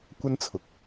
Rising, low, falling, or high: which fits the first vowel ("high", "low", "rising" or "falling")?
high